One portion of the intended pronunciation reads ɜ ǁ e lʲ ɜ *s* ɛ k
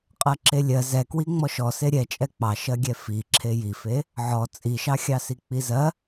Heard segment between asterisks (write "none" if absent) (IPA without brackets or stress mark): z